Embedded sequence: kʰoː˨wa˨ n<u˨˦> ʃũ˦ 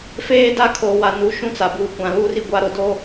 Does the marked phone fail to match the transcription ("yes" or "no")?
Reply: no